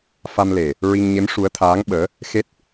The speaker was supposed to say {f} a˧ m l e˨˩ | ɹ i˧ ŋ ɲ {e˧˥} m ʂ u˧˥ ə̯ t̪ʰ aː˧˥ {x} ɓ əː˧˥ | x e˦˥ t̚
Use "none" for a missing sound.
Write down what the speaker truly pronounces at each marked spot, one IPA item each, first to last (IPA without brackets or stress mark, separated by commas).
f, e˧˥, ŋ